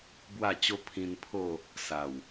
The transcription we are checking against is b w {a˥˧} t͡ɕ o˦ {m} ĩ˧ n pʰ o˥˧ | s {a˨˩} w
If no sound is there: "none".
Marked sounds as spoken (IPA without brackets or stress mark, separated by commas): a˥˧, pʰ, a˨˩